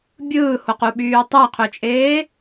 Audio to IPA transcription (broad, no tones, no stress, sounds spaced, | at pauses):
bʲ ɯː h o q u ɓ yː tˤ æ qʰ ø t͡ʃʼ eː